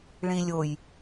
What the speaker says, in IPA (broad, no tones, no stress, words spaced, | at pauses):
ɭĩlʲoj